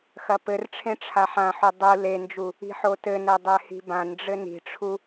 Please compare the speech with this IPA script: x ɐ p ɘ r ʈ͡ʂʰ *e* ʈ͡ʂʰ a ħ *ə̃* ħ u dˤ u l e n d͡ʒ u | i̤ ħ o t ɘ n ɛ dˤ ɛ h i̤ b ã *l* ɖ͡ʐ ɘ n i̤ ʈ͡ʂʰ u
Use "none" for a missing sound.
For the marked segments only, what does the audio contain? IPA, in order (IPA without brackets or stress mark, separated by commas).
ẽ, ã, n